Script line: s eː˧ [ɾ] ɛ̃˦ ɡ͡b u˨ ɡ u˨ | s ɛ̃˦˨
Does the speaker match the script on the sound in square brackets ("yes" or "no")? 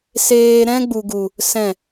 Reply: yes